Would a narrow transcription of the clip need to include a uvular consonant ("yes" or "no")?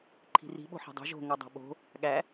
no